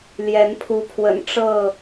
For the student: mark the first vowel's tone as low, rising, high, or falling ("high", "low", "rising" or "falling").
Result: rising